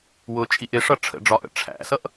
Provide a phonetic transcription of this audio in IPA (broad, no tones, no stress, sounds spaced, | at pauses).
w ʊ t͡ʃʼ i ʔ ɪ ʂ ʌ ʈ͡ʂʰ ə̰ ɖ͡ʐ ɒ ʔ ə̰ ʈ͡ʂʰ æ̰ s ʌ ʔ